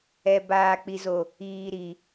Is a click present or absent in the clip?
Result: absent